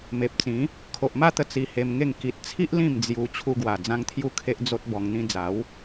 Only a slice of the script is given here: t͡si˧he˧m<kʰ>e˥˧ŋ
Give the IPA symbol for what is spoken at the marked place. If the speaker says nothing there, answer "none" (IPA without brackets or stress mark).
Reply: ŋ